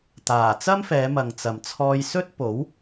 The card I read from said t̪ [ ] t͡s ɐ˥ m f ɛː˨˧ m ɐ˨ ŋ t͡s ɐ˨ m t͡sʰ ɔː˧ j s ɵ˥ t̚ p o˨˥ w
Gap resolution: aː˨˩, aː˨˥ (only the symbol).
aː˨˩